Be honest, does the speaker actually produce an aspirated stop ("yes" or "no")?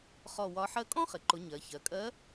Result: no